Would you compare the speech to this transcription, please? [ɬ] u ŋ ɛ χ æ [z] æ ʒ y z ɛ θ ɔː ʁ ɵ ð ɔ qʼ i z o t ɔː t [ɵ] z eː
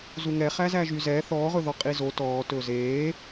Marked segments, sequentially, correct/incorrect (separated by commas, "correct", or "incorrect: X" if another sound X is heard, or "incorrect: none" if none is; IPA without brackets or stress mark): incorrect: z, correct, incorrect: ɵː